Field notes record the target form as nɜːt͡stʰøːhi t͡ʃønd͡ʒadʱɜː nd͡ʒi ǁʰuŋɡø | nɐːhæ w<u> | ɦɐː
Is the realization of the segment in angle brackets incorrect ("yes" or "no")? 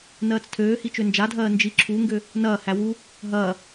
no